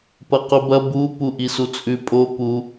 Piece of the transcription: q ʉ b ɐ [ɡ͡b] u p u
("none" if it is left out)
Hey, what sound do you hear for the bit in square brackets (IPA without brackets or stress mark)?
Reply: b